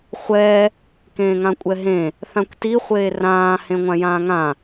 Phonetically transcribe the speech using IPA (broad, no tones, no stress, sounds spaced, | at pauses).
χʷ ɛ | k ẽː ŋ ã kʷʼ ɛ ɦ ẽ | θ ã kʷ t i χʷ eː r ãː h ẽ ŋʷ ã j ãː ŋ ã